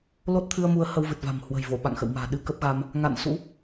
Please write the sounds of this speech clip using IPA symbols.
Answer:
l o˦˥ t̚ t̪ʰ ɨ˧ ə̯ m u˨˦ ə̯ h ə˧ w v ɨ˨˩ t̚ v a̤˨˩ m h w ə̤˨˩ j v o˧˩ ɓ a̰˧˨ ŋ x ə̰˧˨ w m a̤ː˨˩ ɗ ɨ˧ k ə˦˥ p̚ ɣ a˧ m | ŋ a̰˧˨ n s ṵ˧˥

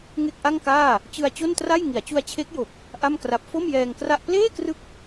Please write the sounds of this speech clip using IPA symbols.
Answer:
ŋ e˥˩ k̚ ʔ a˥˩ ŋ k aː˥˩ | t͡ɕ ɯ˧ a̯ t͡ɕ o˥˩ n t r a˥˩ j ŋ i˩˦ a̯ t͡ɕ u˧ a̯ t͡ɕʰ e˦˥ k̚ j o˨˩ k̚ | ʔ a˥˩ m k r a˦˥ p̚ f o˥˩ m j ɛː˧ ŋ k r a˥˩ ʔ p l eː˥˩ k r ɯ˦˥ k̚

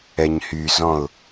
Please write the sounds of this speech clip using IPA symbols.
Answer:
ɛ ɲ h y z ɔ̃ ʊ̯

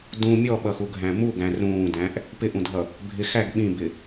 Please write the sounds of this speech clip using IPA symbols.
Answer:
d ũ mʲ ɔ ɓ ʌ x u ɡʱ æ̃ m u ɡ æ̃ r ũː d æ̃ ʔ | p ɪ ʔ ũ dʱ ʌ | bʱ ɪ x æ ɡ ɓ ĩ b ɪ

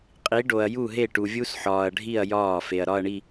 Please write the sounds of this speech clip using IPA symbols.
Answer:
qʼ i˨˥ ɖ o˨ ɐ̯ j u˥˩ ɦ e˥˩ ʈ u˨ vʲ u˦˥ s ħ ɒː˨ ɐ̯ ɖʱ i˥˩ ɐ̯ j ɒː˥˩ f e˨ ɐ̯ ɾ ɒ˥˧ ɐ̯ ɳ i˥˧

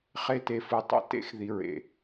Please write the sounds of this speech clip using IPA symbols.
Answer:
χ e˧ t e˨ f ɨ˨ tˤ ḛ˧ t ḛ˧ x ð i˨ ɹ ḛ˨

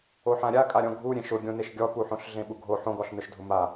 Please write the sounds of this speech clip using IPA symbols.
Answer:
o ħ ã ɾʲ a kʼ a ɾʲ ɔ̃ ɡʱ u ɾʲ ẽ ʃ ʊ ɡʲ õ n e ʃ ɡʲ ɔ p u ħ õ ɬ ɮ ẽ ɓ u ɡʱ o ħ õ ɡ ɔ ɬ n ʊ ʃ dʱ ʊ m a

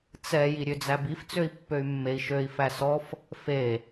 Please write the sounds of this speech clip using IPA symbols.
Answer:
t͡s ɛ j i ɾʲ ø d͡z æ b i f t͡s ø i̯ pː ø y̯ mː e i̯ ʃ ø i̯ f æ s ɔ f | f e

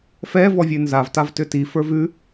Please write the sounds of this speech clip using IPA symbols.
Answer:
f ɛ v ɔ vʲ ʉ n z a v t a v t ʏ t i f ə˞ v ʉ

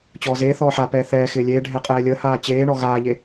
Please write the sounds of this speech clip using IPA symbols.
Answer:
t͡ɕ ɔː z eː θ ɔː ħ a p ɛː θ ɛː x ɪː lʲ eː ɖʱ ɛ qʼ ɛː lʲ əː h aː t͡ɕ eː ɳ ɔ ɣ aː ʎ e

